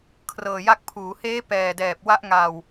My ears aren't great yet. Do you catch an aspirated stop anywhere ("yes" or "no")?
yes